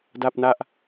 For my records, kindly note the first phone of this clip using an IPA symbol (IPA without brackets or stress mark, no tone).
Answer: d